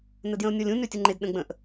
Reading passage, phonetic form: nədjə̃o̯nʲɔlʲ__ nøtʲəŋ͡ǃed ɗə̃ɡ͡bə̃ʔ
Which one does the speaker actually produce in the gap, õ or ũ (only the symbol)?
ũ